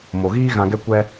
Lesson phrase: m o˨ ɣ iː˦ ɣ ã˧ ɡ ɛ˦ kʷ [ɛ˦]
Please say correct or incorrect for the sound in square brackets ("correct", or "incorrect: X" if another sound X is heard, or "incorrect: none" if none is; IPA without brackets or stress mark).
correct